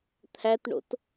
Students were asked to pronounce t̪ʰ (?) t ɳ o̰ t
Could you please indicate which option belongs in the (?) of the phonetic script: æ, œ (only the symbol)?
æ